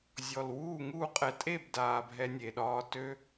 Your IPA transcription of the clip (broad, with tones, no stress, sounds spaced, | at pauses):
zʲ ɔ˨˩ l w uː˥˨ ŋ uː˥˨ qʼ ɛ˧ tʼ e˥˨ b d aː˨˩ bʱ ɛ˧ nʲ e˨˩ ɗ ɒː˧ t ø˧